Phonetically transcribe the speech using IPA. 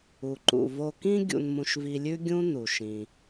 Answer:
u˩ ǃ ṵ˩ v o˧ k ĩ˥ ɡʲ ṵ˧ n m ũ˧ ʃ v i˧ lʲ ʉ˥ ɡʲ ũ˥ n u˩ ʃ ĩ˩

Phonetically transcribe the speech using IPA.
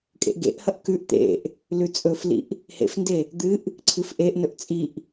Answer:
kʼ ḛ ʔ ɡ ḛ ʔ h ɐ ʔ k ʉ ʔ t̪ ḛ ʔ | l ʉ t͡sʼ ɵ f l ḭ ʔ | h ḛ f n d e | d̪ ɨ ʔ | ǀʰ ɨ f ʔ e ʔ n ɵ ʔ t͡sʼ i ʔ

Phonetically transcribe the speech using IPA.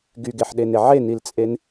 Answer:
ɡ y ɡ e ħ ɗ e n e ʕ e n i l t͡sʼ e n

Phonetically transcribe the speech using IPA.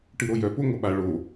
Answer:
ʈ ɨ ɾ o j œ p o ŋʷ ɐ ɓ a ɭ o

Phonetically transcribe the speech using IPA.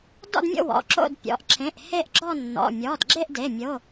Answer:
d ɔ̰˥˧ d mʲ o̰˥˧ w ɔ̰˩˧˩ ǁ o̰˥˧ d pʲ ɔ̰˩˧˩ ʔ ǁʰ ẽ˩˧˩ ʔ h e˥˧ ʔ ɡ͡ǁ ɔ˥˧ nː ɔ̰˩˧˩ mʲ ɔ˩˧˩ d ɡ͡ǁ e˥˧ ʔ d e˩˧˩ mʲ o˩˧˩

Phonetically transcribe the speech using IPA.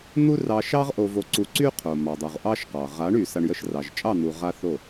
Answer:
n̪ u˦ r ɑ˧ ʃ ɑ˦ ʁ ʔ o˧ v o˧ ǀ u˧ ǀ y˦ qʰ o˨ m ɑ˨ dˤ u˨ ʁ ʔ ɑ˦ ʃ q ɑ˨ ʁ a˨˦ ɳ y˨ s a˧ ɳ j ə˧ ʃ r ɑ˨ ʒ t͡ʃʼ ɑ˦˨ n̪ u˨ ʁ a˦ θ o˦˨

